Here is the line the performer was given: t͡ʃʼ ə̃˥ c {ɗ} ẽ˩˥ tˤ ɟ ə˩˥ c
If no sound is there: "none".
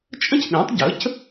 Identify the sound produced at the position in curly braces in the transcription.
ɗ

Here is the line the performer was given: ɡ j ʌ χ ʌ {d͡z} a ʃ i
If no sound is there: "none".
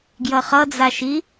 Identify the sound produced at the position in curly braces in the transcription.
d͡z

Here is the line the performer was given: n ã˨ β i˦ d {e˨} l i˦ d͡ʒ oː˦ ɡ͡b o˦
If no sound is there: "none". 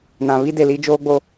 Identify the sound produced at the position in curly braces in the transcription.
e˨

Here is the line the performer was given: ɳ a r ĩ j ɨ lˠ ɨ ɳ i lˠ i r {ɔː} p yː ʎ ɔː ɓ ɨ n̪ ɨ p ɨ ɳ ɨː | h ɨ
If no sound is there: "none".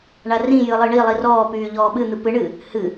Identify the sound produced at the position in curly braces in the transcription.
ɔː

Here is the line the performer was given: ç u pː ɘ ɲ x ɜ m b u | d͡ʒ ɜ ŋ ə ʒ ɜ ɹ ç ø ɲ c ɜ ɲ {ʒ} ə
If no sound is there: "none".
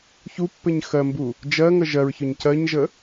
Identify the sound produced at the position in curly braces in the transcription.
ʒ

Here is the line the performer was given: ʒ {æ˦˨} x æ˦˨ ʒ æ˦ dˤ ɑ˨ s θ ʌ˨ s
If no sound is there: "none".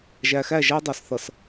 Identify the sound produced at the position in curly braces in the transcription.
æ˨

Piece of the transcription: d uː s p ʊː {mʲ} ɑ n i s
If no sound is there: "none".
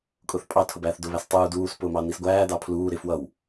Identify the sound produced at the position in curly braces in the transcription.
m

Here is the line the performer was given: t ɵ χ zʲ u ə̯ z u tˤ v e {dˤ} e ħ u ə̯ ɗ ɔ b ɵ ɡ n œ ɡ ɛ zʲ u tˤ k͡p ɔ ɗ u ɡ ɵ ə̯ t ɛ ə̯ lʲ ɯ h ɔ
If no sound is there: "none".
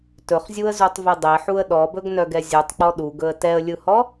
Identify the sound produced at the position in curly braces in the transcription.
dˤ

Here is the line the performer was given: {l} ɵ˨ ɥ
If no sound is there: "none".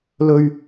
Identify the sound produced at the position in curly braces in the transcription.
l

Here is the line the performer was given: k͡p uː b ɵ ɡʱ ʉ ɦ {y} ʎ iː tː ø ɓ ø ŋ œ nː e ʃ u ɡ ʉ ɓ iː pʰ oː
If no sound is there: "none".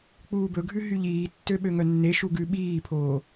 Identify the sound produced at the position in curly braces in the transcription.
y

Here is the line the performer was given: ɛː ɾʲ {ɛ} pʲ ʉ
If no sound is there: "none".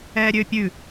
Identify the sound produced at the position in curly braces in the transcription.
ø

